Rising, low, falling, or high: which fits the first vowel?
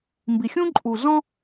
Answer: low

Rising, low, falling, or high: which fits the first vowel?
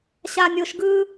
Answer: high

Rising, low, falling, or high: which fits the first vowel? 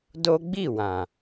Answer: high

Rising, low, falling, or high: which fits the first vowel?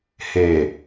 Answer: low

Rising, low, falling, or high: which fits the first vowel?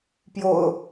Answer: low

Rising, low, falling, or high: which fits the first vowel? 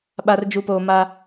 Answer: low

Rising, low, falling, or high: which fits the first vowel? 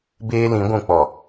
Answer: high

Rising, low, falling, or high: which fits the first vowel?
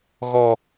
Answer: low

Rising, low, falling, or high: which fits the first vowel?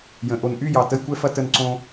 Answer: low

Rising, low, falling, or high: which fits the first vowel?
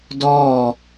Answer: falling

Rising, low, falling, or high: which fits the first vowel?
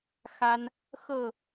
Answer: high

